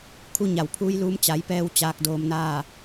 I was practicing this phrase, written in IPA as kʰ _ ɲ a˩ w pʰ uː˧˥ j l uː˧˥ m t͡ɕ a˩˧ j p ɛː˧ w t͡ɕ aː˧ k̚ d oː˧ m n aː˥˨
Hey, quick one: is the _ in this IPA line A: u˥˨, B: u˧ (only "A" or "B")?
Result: B